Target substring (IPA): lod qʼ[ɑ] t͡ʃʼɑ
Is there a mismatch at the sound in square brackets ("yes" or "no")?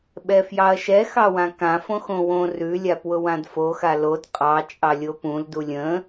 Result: no